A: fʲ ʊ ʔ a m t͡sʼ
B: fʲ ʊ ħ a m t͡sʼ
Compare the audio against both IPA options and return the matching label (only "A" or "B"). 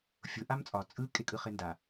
A